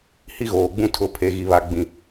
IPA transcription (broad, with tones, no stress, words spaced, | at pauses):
hi˦ɣoː˨ ɡ͡bũ˦ tʰʊ˦ pʰe˨ɣi˨βa˨ ɡ͡bĩ˨